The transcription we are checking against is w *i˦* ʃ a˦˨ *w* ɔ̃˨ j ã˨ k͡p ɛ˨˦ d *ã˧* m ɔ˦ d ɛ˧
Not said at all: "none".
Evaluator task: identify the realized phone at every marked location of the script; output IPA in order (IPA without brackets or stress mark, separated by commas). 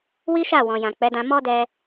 i˦, w, ã˧